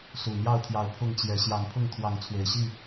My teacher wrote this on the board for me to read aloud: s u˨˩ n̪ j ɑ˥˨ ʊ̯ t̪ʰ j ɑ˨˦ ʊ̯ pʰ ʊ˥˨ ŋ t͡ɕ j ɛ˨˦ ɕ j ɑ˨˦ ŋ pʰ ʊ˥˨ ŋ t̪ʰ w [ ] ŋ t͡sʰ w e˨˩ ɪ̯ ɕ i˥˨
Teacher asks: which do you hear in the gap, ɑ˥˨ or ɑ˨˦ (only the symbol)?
ɑ˨˦